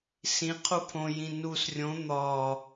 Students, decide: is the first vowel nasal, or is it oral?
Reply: nasal